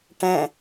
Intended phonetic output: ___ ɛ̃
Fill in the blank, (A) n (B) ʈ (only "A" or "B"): B